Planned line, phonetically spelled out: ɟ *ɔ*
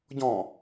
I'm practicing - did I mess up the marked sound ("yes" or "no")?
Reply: yes